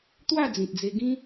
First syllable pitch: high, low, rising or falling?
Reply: falling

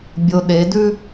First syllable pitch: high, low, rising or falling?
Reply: low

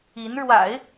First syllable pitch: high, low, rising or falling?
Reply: rising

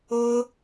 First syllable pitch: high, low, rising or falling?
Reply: high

